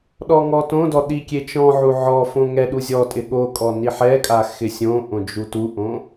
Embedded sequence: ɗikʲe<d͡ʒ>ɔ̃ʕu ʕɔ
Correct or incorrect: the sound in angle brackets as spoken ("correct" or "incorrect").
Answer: incorrect